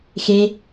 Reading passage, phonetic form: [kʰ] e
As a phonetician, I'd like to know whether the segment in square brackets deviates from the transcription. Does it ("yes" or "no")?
yes